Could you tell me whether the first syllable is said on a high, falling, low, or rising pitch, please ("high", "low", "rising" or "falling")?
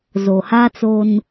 low